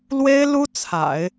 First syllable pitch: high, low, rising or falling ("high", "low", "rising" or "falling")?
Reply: high